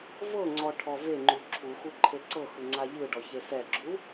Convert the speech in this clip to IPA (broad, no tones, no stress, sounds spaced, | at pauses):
v ɤ ŋ͡ǀ ɔ ʈʰ ɔ v e ŋ͡ǃ u ǁʰ u x u ǃʰ e ǀ ɤ x ɯ ŋ͡ǀ a ʎ ɯ ɖ ɔ ç e s ɛ ɡ͡ǁ u